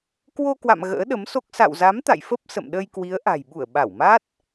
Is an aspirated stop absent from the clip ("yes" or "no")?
yes